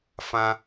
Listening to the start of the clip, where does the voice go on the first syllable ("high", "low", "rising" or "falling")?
high